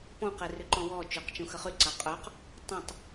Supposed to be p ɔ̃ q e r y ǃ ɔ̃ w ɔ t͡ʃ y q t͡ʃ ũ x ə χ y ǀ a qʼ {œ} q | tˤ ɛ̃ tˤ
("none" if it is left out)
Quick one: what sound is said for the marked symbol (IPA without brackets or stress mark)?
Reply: œ